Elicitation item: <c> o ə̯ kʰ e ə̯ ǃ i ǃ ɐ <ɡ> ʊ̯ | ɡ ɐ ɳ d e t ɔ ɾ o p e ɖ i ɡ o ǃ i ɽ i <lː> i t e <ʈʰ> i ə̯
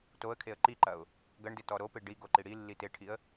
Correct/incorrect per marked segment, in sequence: incorrect: t, incorrect: none, correct, correct

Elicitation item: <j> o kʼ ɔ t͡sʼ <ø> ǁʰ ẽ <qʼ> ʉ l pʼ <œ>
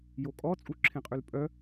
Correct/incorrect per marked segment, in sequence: correct, incorrect: u, correct, correct

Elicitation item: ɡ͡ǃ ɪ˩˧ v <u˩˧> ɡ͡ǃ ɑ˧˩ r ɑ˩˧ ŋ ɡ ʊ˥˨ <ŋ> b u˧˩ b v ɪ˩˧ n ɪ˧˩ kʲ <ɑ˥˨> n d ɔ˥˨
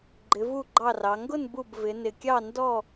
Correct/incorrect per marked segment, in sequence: incorrect: u˧˩, incorrect: n, correct

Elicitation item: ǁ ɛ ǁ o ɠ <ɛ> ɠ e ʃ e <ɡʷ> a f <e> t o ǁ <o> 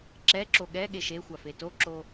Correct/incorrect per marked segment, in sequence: correct, incorrect: xʷ, correct, correct

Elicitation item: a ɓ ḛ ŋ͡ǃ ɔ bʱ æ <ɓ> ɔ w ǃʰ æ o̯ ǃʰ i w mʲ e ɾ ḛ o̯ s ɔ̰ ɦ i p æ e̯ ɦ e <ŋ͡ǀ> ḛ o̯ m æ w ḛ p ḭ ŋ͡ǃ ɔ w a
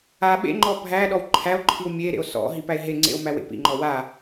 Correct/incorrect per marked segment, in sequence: incorrect: ɗ, correct

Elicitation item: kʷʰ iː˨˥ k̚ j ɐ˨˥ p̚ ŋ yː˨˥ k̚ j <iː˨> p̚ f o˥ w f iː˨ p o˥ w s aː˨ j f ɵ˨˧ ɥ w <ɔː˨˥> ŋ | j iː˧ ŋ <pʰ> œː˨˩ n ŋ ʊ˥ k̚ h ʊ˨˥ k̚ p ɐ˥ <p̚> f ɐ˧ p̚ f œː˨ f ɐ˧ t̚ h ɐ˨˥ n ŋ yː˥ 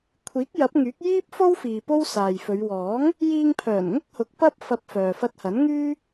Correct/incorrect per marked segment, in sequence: incorrect: iː˥, correct, correct, correct

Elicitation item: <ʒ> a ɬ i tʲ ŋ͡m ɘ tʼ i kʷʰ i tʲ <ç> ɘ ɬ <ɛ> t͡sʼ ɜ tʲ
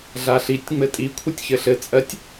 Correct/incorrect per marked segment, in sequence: incorrect: ɮ, correct, incorrect: ɘ

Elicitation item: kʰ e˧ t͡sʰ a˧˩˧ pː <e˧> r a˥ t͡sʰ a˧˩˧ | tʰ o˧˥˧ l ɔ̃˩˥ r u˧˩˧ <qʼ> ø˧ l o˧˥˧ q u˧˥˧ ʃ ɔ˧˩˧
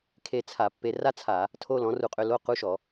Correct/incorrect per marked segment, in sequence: correct, correct

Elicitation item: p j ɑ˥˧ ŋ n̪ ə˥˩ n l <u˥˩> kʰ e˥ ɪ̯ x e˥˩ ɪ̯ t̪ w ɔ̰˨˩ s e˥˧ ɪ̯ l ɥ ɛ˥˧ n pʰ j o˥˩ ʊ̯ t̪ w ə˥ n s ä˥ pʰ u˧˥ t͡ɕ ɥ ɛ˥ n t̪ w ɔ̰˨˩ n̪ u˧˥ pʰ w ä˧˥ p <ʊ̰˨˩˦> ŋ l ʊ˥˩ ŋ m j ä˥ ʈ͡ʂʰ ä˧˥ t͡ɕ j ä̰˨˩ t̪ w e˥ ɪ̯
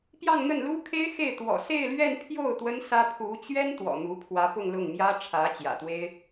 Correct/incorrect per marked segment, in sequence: incorrect: u˥, incorrect: ʊ˥˧

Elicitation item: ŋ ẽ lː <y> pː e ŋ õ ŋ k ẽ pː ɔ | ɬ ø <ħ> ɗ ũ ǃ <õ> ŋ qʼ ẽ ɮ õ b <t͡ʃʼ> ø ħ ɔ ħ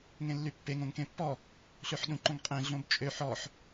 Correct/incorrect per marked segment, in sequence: correct, correct, correct, correct

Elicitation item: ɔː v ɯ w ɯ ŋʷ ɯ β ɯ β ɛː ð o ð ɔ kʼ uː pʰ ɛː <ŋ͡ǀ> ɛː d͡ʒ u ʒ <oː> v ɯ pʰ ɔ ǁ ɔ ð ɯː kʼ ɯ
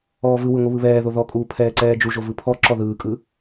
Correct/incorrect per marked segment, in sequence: incorrect: ǀ, incorrect: o

